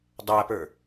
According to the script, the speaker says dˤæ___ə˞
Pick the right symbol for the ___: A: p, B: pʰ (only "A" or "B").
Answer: A